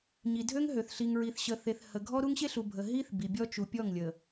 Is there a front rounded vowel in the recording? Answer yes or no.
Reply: yes